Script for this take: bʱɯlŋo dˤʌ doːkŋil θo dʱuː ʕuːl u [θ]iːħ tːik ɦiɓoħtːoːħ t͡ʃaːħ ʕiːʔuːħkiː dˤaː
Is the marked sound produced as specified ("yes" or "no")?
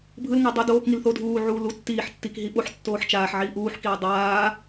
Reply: no